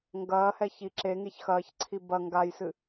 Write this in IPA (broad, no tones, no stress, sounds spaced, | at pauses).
ŋ ɡ ɐː h ɛ ç i ǁ e ŋ e ç x ɐː ç ǀʰ i b ɐ ŋ ɡ a j s ɨ